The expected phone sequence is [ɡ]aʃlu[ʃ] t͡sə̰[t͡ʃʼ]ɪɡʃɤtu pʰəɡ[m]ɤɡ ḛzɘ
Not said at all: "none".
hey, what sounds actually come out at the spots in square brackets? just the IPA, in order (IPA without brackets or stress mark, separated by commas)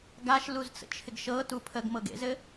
ɡ, z, t͡ʃʰ, m